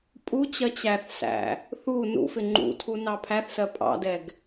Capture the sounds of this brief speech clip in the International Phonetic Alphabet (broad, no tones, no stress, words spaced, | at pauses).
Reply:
pʼut͡ɕɜ t͡ɕæθsæ̰ | θu nṵfɪ ŋ͡ǃṵtʰu nɑpʰæθsɜ pʼɑ̰dɛɡ